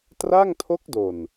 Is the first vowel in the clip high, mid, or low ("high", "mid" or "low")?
low